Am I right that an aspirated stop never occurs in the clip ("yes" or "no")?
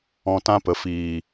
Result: yes